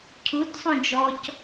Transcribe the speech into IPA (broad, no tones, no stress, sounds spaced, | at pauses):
cʰ u t sˤ õ d͡ʒ ɔ c